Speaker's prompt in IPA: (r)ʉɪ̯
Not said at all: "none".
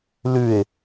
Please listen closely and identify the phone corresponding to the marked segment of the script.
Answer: l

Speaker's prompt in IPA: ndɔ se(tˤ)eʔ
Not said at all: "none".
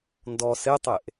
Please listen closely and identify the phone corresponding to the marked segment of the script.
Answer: tˤ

